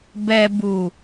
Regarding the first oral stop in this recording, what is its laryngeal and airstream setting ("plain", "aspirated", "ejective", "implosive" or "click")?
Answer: plain